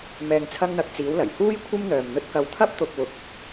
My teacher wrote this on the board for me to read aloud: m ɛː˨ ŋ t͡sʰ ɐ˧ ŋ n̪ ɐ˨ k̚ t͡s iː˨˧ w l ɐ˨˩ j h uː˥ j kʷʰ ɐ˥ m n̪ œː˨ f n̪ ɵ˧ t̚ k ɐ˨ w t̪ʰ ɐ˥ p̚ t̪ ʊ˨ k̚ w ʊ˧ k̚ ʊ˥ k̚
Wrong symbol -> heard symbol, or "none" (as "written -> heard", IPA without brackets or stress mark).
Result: f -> m